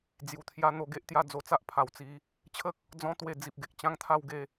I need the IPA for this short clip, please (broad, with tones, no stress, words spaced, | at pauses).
d͡zju˨˩t̪ʰja˧ n̪o˧ɡe˦ʔt̪ja˥˧ d͡zo˧t͡sa˦ʔ pʰa˧wt͡si˦ | t͡ɕʰə˦k̚ | d͡zɔ̃˦t̪we˧ d͡zi˨p̚ɡe˨k̚ t͡ɕã˦ŋt̪ʰa˥˧wɡe˥˧